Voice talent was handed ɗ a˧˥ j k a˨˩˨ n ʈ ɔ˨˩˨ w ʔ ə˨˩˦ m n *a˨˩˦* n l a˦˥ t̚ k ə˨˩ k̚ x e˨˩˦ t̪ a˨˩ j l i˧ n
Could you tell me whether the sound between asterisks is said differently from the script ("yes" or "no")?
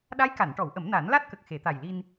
no